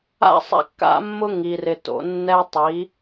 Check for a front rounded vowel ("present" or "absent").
absent